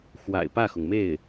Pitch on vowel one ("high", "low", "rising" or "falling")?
low